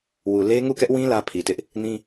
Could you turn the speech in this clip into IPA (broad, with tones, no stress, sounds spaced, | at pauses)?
w u˨ l e˦ ŋ u˦˨ k ɛ˦ ʔ w ĩ˦ l ä˦ pʰ i˨ t ɪ˦ ʔ | n ĩ˦